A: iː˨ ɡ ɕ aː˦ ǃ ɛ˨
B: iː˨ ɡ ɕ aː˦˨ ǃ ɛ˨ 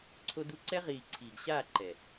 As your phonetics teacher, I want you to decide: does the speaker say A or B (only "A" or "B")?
B